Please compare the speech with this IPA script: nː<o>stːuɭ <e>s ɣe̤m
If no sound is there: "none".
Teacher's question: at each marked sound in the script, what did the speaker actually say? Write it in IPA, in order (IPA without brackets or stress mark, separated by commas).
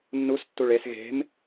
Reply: u, e